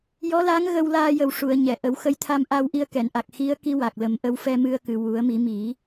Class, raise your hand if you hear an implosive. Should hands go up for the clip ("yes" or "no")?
no